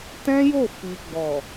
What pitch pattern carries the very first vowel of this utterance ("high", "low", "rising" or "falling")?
high